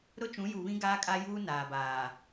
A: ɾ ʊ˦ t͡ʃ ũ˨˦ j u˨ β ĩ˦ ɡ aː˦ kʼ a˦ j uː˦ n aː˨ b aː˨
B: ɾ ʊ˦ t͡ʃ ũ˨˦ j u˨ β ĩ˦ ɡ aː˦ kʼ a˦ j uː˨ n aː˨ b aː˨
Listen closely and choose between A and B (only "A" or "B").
A